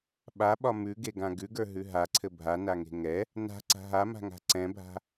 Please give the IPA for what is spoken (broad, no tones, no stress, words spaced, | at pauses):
ɓaɓɒ mʉɡeɡã ɡʉɡə˞ɦʉ ɦaǀʰɘ bʱanaŋe̤ ŋɛ | na̤ǀa̤ ɦama̤ŋa̤ ǀɛ̃bʱa̤